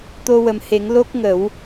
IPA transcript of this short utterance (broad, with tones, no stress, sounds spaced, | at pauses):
t̪ o˧ w ə˨˩ m h e˨˩˦ ŋ l o˦˥ k̚ ŋ ə˨˩˦ w